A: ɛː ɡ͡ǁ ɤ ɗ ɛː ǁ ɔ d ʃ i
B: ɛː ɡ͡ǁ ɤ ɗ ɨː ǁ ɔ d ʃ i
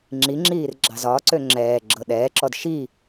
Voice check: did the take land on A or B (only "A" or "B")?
A